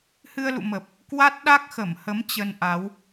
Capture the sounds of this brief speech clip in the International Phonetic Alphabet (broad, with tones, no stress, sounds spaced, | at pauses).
h ɨ˧ ə̯ l ṵ˧˨ m ə˨˩ p̚ | k w a˦˥ t̚ ɗ a˦˥ k̚ x ə˧˩ m h ə˨˦ m t͡ɕ ə˧ n ʔ a˨˦ w